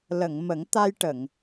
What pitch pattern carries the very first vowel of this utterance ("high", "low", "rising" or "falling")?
low